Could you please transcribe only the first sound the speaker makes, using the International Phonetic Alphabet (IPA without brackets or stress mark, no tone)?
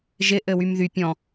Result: ʒ